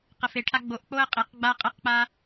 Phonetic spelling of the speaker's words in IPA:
q ə f e ʈʰ a ɡ͡b o ʔ k͡p o ə̯ qʼ e q ɡ͡b a qʼ ə q k͡p a

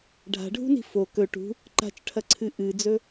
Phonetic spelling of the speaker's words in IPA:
ɖʱ a̤ ɖʱ ṳ n i̤ f o k ɵ ʈ ṳ | ǃ a̤ t͡ʃ ʈʰ ɐ ǀʰ ɨ ʔ ɨ d͡z ɵ

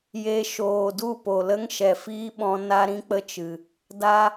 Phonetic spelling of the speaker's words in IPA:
j e˧ ʃ oː˨ d u˦˨ p o˨ l ə˦ ŋ ʃ ɛ˨ f iː˦ ɓ ɔ̃˧ n a˦ ɾ ĩ˦ k͡p ə˦ t͡ʃ ɨ˨ | d a˦

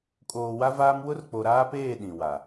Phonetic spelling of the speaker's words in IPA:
kʼ oː˨ w a˦ v aː˦ m w ʊ˦ r k͡p o˨ ɾ aː˦ p eː˦˨ ɗ ĩ˨ w a˨

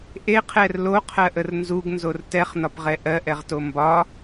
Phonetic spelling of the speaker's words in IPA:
ʔ e qʰ ɛ r l o qʰ ɜ ʔ ə r n z u ɡ n z o r t ɛ χ n ɒ p ʁ ɛ ʔ ɜ ʔ ɛ ʁ t o m b ɒ

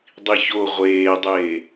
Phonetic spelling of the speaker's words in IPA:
dˤ i ç o ʁʷ eː dˤ eː

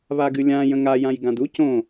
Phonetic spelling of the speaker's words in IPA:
β a ɡ ɨ lʲ ã j ə̃ ŋ a j ã j ɡ ã d u c õ

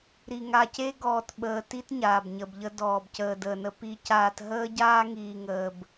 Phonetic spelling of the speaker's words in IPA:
ɾ i˨ ŋ a˨ c e˦ ɡ ɔː˨ t ɓ əː˨ t i˦ t ɲ aː˨ b ɲ ə˨ b ʎ ə˦ d ɔː˨ b c əː˨ d əː˨ n ə˨ p i˨ c aː˨ t ɦ əː˦ ɟ aː˦ ŋ iː˨ ŋ əː˨ b

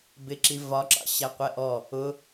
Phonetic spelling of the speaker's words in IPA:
b ɪ ǁ i v ɒ ǁ ɑ̰ ɕ æ qʷ ɛ ʔ ɔ | ʊ

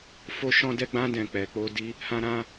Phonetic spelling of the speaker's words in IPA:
f o˦ ʃ ɔ̃˦ d ɛ˦ ɡ͡b ã˦ d ɛ̃˦˨ k͡p ɛ˨ k͡p o˧ d i˧ | h ã˦ ɾ ã˦

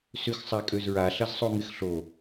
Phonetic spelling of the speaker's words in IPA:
s ʏ x sˤ a kʼ ø z ɹ a ɬ ɐ z sˤ o ŋ ɪ x ɬ o

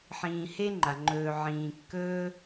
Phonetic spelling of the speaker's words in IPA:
ħ ĩː˨ h e˥ ŋ͡ǃ a˩ ŋ͡ǃ ɵː˨ ʕ ĩː˨ kː ɵː˥

